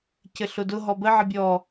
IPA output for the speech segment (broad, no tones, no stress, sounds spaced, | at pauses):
c ɘ ɬ ʊ d ʊ ɦ ɔ b ə ʕ ə bʲ ɔ